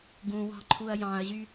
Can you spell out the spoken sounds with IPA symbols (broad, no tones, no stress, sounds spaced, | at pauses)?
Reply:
ɡ ũ w ɑ̤ ǃʰ u ɐ̯ j ɑ̃ ɐ̯ ʑ y